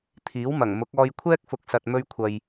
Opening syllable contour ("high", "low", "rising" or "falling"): rising